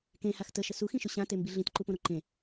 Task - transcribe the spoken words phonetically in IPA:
k ẽ h a x t ə ʃ ə s u x ĩ ʃ ʊ ɕ ã t e m b i ɮ ĩ t ǃ u p õ ɾ o ǃ ẽ

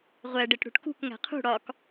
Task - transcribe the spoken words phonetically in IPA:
ʁʷ æ ɖ e ʈ ɽ ṳ ʈ k ṳ k ŋ æ̤ qʰ ṳ ɽ ɒ k

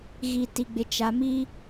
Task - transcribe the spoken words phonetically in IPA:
ɣ i˨ t i˨ ɡ͡b ɪ˨ t͡ʃ a˨ m i˦

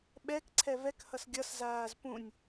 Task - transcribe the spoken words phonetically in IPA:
ɓ ɛ k ǀʰ ɛ v ɛ k h ʌ s ɡʲ ʌ s z aː z p ũ nʲ

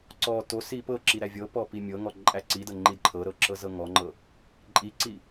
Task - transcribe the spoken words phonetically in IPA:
ǀ ɔ t o s i p ɤ ǁ i ɾ æ vʲ ɤ p ɔ p i mʲ ɤ ŋ ɔ ǃʼ æ ǀ i d ɤ ŋ͡ǃ i d ǃʰ ɤ ɾ ɤ ǁ ɤ z ɤ ŋ ɔ ŋ͡ǃ ɤ | ǃʼ i ǀ i

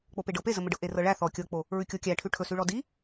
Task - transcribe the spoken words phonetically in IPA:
k͡p o p e ɖ ɤ p e z ə m ə ɖ ɤ ʔ e r ɤ ɭ æ θ ɔ kʲ ɤ k͡p o | ɹ ʉ kʲ o kʲ æ ʈʰ ʉ ʈʰ ɵ s ʉ ɭ ɔ d i

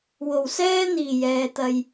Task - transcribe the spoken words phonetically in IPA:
w o˨˩ w s ɛː˥ n̪ iː˨˩ j ɛː˨˧ t̪ ɐ˧ j

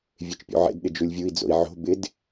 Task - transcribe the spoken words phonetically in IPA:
vʲ e t͡ʃ pʲ ṵ ʕ ḛ d ɗ ɪ d͡ʒ u lʲ vʲ u i̯ d͡z o̰ i̯ ʕ o̤ b ɪ d

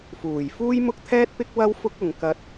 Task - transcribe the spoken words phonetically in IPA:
f uː˨˩ j f uː˥ j m ʊ˥ k̚ t̪ʰ ɛː˥ t̚ p ɪ˥ k̚ w ɐ˥ w f ʊ˧ k̚ ʊ˨ ŋ k ɐ˧ t̚

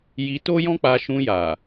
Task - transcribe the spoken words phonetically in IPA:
j i˧ t o˦ j ɔ̃˦ k͡p a˧ ʃ ũ˧ j a˨

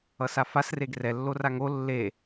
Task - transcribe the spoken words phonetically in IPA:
ʌ s a f a s r e ɡ r ɛ lː o r a ŋ o lː e

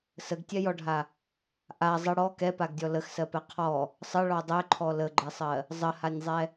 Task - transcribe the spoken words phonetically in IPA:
s ə ɡ tʲ ɛ j ɔ ɖʱ a | ʔ a zˤ ə ɽ ɔ k ɛ p a ɡ dʲ ɔ l ə x s ɜ p ɛ qʰ ɔ | sˤ ə ɭ ɔ dˤ ɛ ǃʰ ɔ l ə ɡ͡ǃ ɛ sˤ ɜ | zˤ ə h a nʲ zˤ ɛ

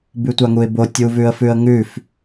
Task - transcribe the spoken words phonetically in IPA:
b ʉ tʷ a ŋ u ɪ̯ b o tʲ u v ʉ ə̯ f ʉ ə̯ ŋ ʉ f

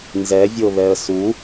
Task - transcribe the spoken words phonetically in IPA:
n z ɛ vʲ o β ɛ ə̯ s u

